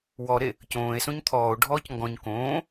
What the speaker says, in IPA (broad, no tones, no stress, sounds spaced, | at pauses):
w ɔ ɾ e | c õː e̯ s õ ɲ t̪ʰ ɔː o̯ ɖʱ ɔː c ŋ ɡ ɔ̃ ɲ k õː